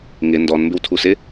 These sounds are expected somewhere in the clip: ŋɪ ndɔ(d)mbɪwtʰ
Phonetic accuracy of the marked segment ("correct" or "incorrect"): incorrect